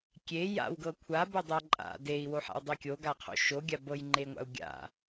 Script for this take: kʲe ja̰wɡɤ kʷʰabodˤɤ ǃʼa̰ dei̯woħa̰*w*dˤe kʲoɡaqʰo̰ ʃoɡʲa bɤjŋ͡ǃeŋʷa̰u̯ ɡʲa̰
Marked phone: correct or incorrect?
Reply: correct